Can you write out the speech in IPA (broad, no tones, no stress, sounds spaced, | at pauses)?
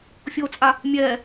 fʲ o t͡sʼ a | mʲ ɛː